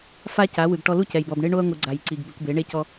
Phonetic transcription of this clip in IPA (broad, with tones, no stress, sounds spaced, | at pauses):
f a˦ c a˨˦ w ɯ˨ ɡ ʈ ɔ˧ l u˦ c ɛ˨ j b ɔ˨ b ɳ e˦ ɳ o˦ ɐ̯ ŋʷ ɯ˨ ɡ͡ǀ a˨ j ǀ i˨ ɡ b e˧ kʷ b e˨˦ ɳ e˦ c ɔ˦